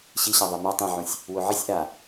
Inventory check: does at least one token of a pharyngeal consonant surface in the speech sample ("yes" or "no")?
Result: yes